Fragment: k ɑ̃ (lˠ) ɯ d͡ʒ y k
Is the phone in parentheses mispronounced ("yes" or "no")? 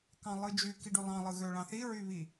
no